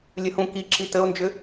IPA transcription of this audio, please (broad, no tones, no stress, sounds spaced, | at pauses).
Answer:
lʲ ə h ũ k i ǁ i t ə o̯ n d͡ʒ ʏ